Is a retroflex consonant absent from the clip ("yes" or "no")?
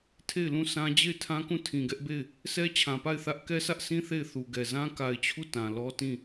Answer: yes